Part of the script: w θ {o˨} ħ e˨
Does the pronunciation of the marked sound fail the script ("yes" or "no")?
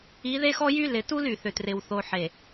no